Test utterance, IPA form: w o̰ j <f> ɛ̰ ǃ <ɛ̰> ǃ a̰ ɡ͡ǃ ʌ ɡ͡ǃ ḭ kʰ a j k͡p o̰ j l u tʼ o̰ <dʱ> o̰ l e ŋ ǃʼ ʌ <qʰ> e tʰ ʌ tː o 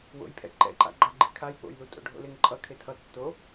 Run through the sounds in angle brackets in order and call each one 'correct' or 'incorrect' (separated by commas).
incorrect, correct, incorrect, incorrect